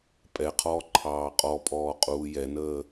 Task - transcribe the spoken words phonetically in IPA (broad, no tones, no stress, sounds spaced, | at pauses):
pʼ ɛ qʰ ɔː ǃʰ ɑː qʼ ɔ pʼ ɔː qʼ uː j ɛ n əː